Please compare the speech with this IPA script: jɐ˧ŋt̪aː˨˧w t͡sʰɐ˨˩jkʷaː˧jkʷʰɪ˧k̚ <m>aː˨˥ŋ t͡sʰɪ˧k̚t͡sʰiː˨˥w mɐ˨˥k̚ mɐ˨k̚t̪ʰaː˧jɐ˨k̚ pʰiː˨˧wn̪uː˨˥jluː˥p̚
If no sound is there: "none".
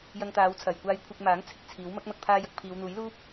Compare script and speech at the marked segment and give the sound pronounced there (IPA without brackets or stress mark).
m